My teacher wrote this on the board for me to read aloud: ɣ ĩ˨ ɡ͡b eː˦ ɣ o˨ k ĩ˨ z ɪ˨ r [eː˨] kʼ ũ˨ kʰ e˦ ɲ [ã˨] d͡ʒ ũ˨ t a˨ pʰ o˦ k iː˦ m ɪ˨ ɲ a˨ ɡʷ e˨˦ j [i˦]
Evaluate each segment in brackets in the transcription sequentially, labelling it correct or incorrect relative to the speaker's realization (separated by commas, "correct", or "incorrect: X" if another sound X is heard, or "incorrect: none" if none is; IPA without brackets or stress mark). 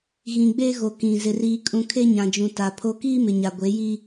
incorrect: iː˨, correct, correct